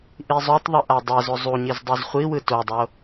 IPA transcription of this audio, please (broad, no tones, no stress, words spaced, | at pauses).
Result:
ʔizˤotˤðˤɯ ʔadˤɛzo zˤuɲiz dˤizχʷiwɯ todˤo